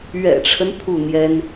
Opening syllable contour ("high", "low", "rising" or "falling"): low